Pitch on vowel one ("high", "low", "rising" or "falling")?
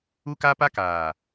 high